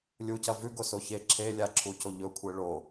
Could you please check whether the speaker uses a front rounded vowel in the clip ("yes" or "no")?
no